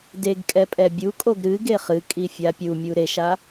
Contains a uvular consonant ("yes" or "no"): yes